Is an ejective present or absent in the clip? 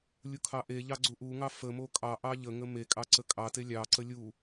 present